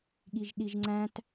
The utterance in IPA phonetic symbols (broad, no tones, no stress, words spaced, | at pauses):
ɠiʒɗiʒŋ͡ǀæ̃t